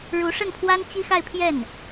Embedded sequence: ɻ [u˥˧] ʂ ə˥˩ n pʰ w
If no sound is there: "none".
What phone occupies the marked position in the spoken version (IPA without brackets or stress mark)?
u˧˥